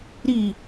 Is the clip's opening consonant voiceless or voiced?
voiced